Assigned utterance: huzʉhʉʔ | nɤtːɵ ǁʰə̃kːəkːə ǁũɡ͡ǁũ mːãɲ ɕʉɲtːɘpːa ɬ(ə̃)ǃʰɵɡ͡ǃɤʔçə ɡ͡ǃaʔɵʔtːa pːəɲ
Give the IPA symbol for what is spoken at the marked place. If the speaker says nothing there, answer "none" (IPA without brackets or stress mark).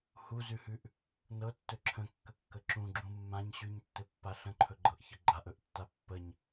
ə̃